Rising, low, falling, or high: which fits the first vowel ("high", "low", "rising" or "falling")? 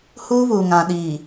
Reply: high